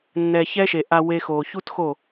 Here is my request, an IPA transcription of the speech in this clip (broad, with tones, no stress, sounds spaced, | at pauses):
nː ɛ˨ ç ɛ˦ ʃ e˨ ʔ a˧ w e˧ x oː˨ ç u˦ t x o˦˨